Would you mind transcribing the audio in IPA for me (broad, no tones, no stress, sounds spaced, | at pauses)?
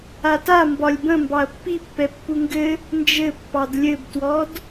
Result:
a t a m b ɒ lʲ b ə̃ m b ɑ ɐ̯ pː i pː ɛ pː u ŋ ɡ ɘ | n d͡ʒ ɘ pː ɑ d lʲ ɘ b t w ɔ d